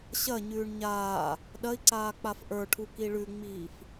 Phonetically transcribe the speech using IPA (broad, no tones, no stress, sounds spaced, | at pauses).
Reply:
ɕ ɐ ɲ ʉː ɳ ɲ aː | ɗ ɐ i̯ ǀ aː k͡p a f ʔ ə˞ ʈʰ u k i ɭ ʉ ŋ͡m iː f